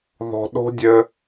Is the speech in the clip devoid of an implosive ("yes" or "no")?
no